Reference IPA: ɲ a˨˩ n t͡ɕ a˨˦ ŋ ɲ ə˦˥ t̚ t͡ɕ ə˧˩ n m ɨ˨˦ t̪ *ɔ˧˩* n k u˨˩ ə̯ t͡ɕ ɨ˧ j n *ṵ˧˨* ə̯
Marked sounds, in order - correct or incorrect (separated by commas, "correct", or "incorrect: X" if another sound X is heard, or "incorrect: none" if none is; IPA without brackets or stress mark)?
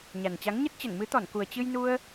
correct, incorrect: u˧